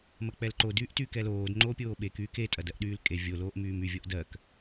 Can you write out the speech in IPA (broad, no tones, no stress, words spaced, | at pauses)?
mɐk͡pɛlǃo dyːʔtykɛloːd ŋ͡ǃoːpʲoːɓek yːke tʼɐdɜʔɗyːlkʼe vʲo loːʔmyːmy vʲoʔdɜk